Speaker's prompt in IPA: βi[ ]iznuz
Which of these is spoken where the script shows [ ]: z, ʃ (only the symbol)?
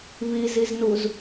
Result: z